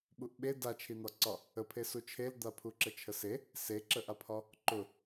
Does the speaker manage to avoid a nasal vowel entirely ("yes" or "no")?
yes